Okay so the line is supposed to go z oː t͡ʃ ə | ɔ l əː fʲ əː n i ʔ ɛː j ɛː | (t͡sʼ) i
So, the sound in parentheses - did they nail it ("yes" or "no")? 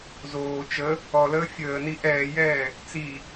no